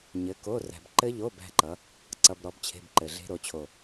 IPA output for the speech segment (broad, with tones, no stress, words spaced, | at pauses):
ɲɘ˨˥ko˧˥˧ ræ̤˨bǃɘ˦˥ʎo˧˥˧b æ̤˦˥ǃʌ˨˥ | ǀʌ˧˥˧b ɾɔ˨˥bt͡ɕʰe̤˧˥˧bǃɘ˨ɮe̤˦˥ ɾo˨˥ t͡ɕʰo˦˨